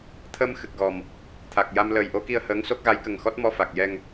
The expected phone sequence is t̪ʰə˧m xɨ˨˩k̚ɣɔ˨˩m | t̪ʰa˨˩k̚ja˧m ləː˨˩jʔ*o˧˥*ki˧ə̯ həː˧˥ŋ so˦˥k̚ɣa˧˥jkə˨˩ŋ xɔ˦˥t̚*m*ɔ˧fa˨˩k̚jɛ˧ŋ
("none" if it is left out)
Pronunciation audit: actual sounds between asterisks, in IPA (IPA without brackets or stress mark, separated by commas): o˧˥, m